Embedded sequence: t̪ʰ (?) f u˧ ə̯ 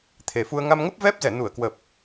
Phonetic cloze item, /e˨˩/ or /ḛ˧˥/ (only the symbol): e˨˩